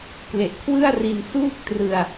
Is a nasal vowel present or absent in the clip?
absent